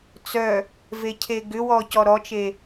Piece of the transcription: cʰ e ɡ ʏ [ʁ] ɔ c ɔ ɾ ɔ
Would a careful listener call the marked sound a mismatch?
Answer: yes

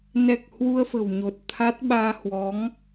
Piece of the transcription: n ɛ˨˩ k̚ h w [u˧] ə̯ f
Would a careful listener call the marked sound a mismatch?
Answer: no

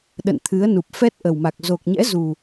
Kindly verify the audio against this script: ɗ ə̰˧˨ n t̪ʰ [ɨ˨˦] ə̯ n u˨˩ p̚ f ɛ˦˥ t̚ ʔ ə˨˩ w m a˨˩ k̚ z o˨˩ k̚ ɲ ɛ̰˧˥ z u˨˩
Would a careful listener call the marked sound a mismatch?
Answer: no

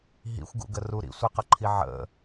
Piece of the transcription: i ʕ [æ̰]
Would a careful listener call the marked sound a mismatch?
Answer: yes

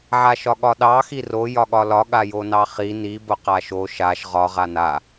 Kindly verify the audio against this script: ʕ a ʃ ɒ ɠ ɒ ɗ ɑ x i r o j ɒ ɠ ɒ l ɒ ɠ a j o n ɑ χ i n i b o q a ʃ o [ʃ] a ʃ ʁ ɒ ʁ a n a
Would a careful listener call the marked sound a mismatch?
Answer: no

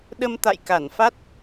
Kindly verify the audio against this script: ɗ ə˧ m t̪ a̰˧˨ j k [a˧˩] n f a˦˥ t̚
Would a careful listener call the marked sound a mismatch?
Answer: no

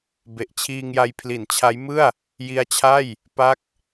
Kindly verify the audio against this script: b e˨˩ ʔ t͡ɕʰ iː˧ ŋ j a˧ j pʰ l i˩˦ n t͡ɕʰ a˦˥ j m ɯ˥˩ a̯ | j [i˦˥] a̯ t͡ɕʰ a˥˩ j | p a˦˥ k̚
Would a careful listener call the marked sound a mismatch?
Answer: no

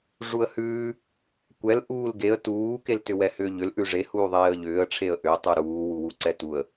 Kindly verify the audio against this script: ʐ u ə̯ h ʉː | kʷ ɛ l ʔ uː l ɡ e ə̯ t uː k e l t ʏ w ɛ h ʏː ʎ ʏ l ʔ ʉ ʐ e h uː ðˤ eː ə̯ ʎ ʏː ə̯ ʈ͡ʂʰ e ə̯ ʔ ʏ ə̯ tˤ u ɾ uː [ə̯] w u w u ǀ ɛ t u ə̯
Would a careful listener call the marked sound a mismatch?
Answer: yes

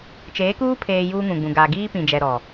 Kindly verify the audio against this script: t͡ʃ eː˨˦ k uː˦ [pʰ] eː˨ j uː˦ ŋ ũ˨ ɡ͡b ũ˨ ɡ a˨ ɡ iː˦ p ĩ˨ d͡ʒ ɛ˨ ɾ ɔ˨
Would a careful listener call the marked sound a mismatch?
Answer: no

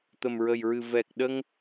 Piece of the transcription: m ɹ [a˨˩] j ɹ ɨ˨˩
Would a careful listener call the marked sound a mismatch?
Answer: yes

